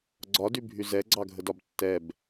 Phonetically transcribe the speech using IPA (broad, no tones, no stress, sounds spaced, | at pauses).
ɡ͡ǀ ɒ d y bʱ y z ɛ ɡ͡ǀ ɑ ɡʱ ə d ɒ b tː ɛ b